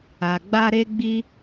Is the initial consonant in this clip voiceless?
no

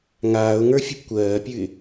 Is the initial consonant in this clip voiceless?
no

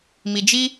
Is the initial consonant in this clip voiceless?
no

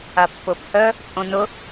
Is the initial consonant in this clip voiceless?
yes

